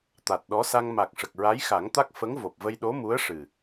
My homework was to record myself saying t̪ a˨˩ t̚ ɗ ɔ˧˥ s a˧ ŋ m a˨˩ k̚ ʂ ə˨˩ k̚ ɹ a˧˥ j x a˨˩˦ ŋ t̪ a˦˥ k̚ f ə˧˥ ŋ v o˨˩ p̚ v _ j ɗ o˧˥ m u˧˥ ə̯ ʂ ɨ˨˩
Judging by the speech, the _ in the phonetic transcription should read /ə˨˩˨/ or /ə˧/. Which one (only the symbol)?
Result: ə˧